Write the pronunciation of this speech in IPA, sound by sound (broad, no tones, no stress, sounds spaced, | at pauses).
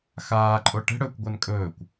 x aː ǃʼ o ʈ ɛ̤ ɽ ɵː kʷ ɡʷ a n kʼ ɵː kʷ